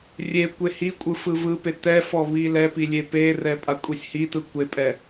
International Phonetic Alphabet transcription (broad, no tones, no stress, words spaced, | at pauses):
rʲe kʷehikʷʼɯ fɯvɯpe tɛfɔ βilɛpi lʲeperɛ pʼakʷʼisʲhitɯ kʷepʼɛ